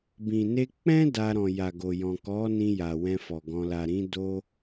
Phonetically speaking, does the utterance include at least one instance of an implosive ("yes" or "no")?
no